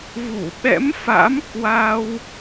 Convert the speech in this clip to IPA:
v u˧˩ ɓ ɛ̰˧˥ m f a̰˧˥ m k w a˧ w

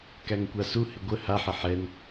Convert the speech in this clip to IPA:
k æ ŋ kʷ a s u h ɪ ɡʷ ə h a ħ ə ħ ɛ n

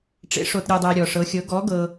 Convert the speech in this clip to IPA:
ʈ͡ʂ ḛ˧˥ ʂ o˧ t ɾʲ ɯ˧ dˤ ɛ˧ ɾʲ ɔ˧ ʂ ɤ˧˥ xʲ ɤ˧˥ ɡ ɔ˧˥ ɡ ɤ˧

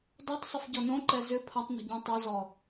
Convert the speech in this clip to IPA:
d ɔ tˤ sˤ ɪ f ɟ ɔ n õ ǃ ɛ z ʏ pʰ ɐ tˤ n ə̤ ɟ ɔ̃ tˤ u z ɔ

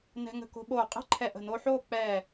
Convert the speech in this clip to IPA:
n ɛ̤˧ ŋ ə̤˧˩ k o̤˧ ɓ oː˧˩ qʼ ɛ̤˥ ǃʰ ɛ˧˩ ʔ ə̤˧˩ n o˧ ħ oː˥˧ k͡p ɛ˧˩

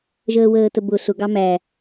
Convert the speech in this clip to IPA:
ʒ əː w əː t ə b ʊ ɬ ʊ ɡ ɑ m æ

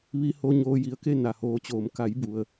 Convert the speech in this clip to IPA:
ʋ i˧ h o˧ ɲ oː˧ j i˧˩ ə̯ k e˥˨ n a˩ h oː˩˧ t͡ɕ oː˩ m k a˩˧ j b u˩ ə̯

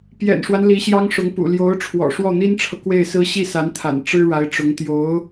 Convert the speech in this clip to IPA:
p j ɛ̰˨˩ n ʂ w a˦ n l i˧˥ ɕ j ɑ˥ ŋ ʂ ʊ˧˥ ŋ p ṵ˨˩ l j o˧˥ ʊ̯ ʈ͡ʂʰ w ɔ̰˨˩ ʂ w ɔ˥˩ n̪ i˥ n ʈ͡ʂʰ ɤ˨ k w e˥˩ ɪ̯ s ɹ̩˥ ɕ i˥˩ s a˧˥ n t̪ʰ a̰˨˩ n ʈ͡ʂ ɻ̩˥ ɻ a˧˥ ɪ̯ ʈ͡ʂ ʊ˧˥ ŋ t̪ j o˧˥ ʊ̯

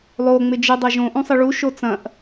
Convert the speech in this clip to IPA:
lˠ o ŋ͡m ɪ d͡ʒ ɪ dˤ ɐ ʒ õ ʔ ũ sˤ ɪ ɭ u ʃ o t͡s ɐ̃ ʔ

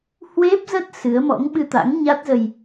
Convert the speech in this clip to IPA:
h w e˦˥ p̚ z ə˦˥ t̚ s ɨ˨˦ ə̯ m ɔ̰˧˥ ŋ ɓ ɨ˧ t̪ a̰˧˥ ŋ ɲ a˦˥ t̚ z ə˧ j

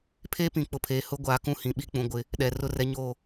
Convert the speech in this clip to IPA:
pʰ eː˦ p ĩ˨ k͡p ʊ˨ pʰ eː˨ h ʊ˦ ɡʷ aː˨ k ũ˦˨ h ĩ˨ ɓ i˦ k͡p ũ˨ ɡʷ ɪ˦ | ɗ ɛ˨ r ʊ˦ r ɛ˦ ɲ oː˦˨

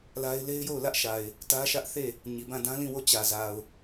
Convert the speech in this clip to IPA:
l a˦ ɪ̯ l e˦ ɪ̯ j o˦˨ ʊ̯ l ä˦ ʔ ʃ a˨ ɪ̯ | t ä˦ ʃ ä˦ ʔ θ e˦˨ | ɲ i˨ b ã˦˨ d ã˦ l ĩ˦˨ w o˦˨ t͡ɕ ä˨ z a˨ ʊ̯

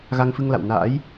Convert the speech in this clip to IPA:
ɣ a˧ ŋ f ɨ˧ ŋ l a̰˧˨ w n a̰ː˧˥ j

